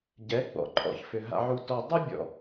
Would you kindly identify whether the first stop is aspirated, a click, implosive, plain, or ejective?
plain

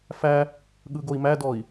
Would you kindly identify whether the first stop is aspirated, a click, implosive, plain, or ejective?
implosive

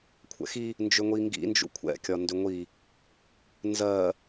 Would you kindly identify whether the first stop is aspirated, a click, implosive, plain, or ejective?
aspirated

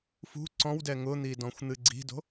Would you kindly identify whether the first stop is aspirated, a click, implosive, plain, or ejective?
click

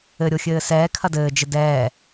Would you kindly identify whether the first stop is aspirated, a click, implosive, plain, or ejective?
aspirated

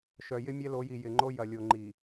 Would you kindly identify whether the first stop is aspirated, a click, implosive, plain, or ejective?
click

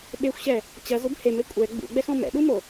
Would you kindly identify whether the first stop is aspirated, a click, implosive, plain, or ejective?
implosive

